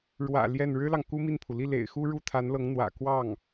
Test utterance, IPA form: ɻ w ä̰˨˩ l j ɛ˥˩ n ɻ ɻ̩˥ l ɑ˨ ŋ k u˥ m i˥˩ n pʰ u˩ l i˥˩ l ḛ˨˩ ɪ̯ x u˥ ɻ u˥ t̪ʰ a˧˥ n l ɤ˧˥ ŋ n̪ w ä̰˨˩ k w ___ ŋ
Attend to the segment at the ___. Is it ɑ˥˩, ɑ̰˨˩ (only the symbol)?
ɑ˥˩